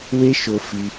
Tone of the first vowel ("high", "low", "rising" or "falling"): high